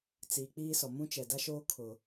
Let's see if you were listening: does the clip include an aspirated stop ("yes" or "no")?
yes